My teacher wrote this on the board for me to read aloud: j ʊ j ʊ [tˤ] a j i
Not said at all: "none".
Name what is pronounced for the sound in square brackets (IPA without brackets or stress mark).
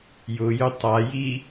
tˤ